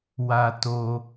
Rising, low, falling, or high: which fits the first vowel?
low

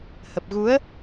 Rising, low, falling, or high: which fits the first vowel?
low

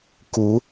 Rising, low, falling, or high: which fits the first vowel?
rising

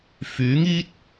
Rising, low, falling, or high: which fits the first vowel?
rising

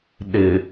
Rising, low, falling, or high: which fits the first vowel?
low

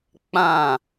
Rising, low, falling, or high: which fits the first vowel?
falling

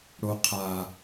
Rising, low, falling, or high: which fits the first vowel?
low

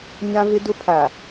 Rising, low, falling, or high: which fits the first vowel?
high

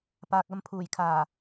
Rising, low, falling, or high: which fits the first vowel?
low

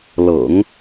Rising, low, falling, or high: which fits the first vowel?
low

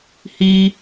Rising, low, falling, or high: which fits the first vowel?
high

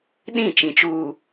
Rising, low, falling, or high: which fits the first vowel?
falling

